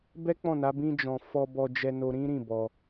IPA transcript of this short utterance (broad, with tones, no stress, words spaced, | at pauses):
bɛ˦k͡pɔ̃˦˨na˨˦ bĩ˦d͡ʒɔ̃˧ fɔ˧bɔ˧d͡ʒɛ˧ no˧ɾĩ˦ ɾĩ˦˨ bɔ˧